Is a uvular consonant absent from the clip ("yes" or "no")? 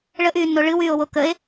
yes